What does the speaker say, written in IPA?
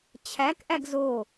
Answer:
t͡ɕʰ æ k ʔ æ ɡ z o

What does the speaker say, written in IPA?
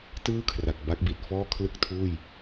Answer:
t ɯː˥˩ kʰ r a˨˩ k̚ b a˦˥ k̚ b i˨˩ t̚ f ɔː˥˩ kʰ l ɯ˥˩ k̚ tʰ uː˥˩ j

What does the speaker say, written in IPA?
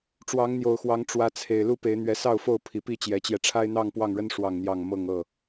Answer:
ʈ͡ʂ w ɑ˨˦ ŋ n̪ j o˨˩ ʊ̯ x w ɑ˨˦ ŋ ʈ͡ʂ w ä˨˦ t͡sʰ e˨˩ ɪ̯ l u˥˨ p e˨˦ ɪ̯ n̪ ɥ ɛ˨˦ s ɑ˥˨ ʊ̯ f o˥˨ ʊ̯ pʰ i˨˩ p i˥˨ t͡ɕ j ɛ˨˦ t͡ɕ j ɛ˧ ʈ͡ʂʰ a˦ ɪ̯ n̪ ɑ˥˨ ŋ p w ɑ˥˨ ŋ ɻ ə˦ n ʂ w ɑ˥˨ ŋ n̪ j ɑ˥˨ ŋ m ɤ˥˨ ŋ ɤ˥˨

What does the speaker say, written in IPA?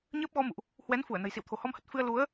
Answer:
ɲ əː˦˥ p̚ ɣ ɔ˧ m ṵ˧˨ ʔ | h w ɛ˨˦ n f u˧˩ ə̯ n ə̤˨˩ j s ḭ˧˨ w t̪ʰ o̤˨˩ h ɔ˧ m h ə˨˩ t̚ f ɨ˧ ə̯ l u˨˦ ə̯

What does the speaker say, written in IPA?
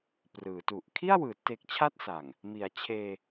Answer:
p r ɯː˩˦ t u˨˩ ʔ kʰ i˥˩ a̯ w ɯː˩˦ t e˨˩ k̚ t͡ɕʰ a˥˩ t̚ s a˨˩ ŋ | m i˩˦ a̯ t͡ɕʰ eː˧

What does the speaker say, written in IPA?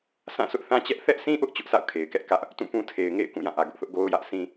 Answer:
sʰ ã˦˨ s ʊ˦ ʔ θ ã˦ t͡ɕ ɛ˦ ʔ θ ɛ˦ ʔ sʰ ĩ˦ ʔ ʊ˦ ʔ t͡ɕ ʊ˦ ʔ sʰ a̰˦˨ ʊ̯ kʰ e˨ ɪ̯ k ɛ˦ ʔ k ä˦ ʔ | t ũ˦˨ p ũ˦ tʰ e˨ ɪ̯ ŋ ḛ˦˨ ɪ̯ k ũ˦˨ j ã˦˨ ʔ ä˨ ɡ ʊ˦ ʔ θ ʊ˦ ʔ ɡ o˦ ʊ̯ j ä˦ ʔ s ĩ˦

